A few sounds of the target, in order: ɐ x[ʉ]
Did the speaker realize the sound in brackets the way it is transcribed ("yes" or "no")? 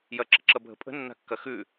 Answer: yes